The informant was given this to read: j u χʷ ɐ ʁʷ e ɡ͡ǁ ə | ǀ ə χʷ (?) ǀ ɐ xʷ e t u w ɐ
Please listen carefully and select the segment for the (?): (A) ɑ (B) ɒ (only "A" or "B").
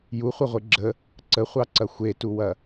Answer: A